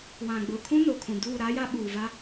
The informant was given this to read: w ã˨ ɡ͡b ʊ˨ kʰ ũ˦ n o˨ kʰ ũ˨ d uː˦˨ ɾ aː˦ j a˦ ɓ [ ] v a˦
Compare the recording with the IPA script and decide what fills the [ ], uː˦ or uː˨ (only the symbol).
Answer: uː˨